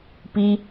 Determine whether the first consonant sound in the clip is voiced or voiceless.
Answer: voiceless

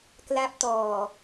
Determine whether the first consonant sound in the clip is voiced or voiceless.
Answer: voiceless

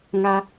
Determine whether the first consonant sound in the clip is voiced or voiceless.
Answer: voiced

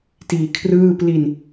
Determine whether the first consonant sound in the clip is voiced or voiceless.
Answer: voiceless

